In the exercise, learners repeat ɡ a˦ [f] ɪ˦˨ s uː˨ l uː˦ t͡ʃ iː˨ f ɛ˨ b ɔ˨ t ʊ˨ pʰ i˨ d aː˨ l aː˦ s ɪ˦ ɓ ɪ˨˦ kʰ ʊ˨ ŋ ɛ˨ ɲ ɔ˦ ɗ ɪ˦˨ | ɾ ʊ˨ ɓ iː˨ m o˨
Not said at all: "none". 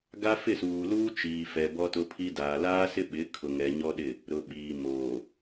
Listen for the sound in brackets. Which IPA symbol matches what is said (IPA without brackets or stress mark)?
f